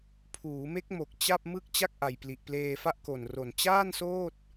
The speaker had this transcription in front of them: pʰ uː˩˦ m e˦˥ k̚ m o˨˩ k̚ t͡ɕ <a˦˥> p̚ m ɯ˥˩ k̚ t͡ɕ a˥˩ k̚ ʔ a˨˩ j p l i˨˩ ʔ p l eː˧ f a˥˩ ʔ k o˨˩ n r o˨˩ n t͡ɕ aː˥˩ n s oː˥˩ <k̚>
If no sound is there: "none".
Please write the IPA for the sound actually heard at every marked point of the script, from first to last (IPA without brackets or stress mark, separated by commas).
a˥˩, t̚